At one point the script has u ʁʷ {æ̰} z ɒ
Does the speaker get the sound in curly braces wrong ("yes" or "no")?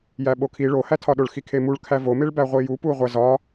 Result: yes